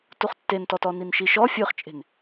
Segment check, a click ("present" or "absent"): absent